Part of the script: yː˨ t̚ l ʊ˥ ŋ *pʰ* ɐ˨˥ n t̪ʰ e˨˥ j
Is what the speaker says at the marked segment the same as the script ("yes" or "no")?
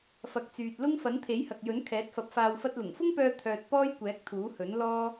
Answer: no